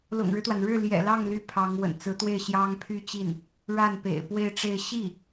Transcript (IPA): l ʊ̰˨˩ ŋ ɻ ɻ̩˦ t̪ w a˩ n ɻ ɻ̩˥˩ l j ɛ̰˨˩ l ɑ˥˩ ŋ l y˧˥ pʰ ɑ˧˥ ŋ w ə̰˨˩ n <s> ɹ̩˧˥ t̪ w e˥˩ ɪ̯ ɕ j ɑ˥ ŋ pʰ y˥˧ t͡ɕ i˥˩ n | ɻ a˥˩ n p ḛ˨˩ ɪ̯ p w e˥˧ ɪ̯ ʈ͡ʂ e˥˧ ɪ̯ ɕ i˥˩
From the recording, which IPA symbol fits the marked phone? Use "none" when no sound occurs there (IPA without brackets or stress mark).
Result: t͡s